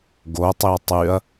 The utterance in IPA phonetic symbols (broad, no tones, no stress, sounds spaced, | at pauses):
ɡ o tˤ i ɐ̯ tˤ y ɐ̯